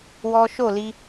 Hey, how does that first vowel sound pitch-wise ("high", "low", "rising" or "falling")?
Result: high